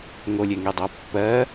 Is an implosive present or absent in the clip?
absent